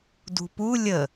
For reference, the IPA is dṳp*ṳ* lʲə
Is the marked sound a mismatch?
yes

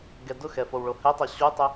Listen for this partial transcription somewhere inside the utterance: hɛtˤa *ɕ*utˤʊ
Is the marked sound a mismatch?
no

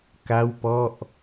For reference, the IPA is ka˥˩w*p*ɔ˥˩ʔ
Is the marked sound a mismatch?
no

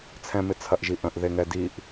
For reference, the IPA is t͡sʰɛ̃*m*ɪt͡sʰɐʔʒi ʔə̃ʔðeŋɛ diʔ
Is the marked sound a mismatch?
no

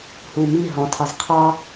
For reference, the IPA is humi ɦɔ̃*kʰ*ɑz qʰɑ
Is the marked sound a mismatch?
yes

